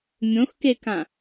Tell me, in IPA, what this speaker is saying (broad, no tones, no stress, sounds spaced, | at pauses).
mʲ õ x k e k ã